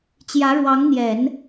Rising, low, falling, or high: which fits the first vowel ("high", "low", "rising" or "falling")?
rising